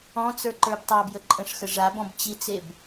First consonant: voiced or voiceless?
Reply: voiceless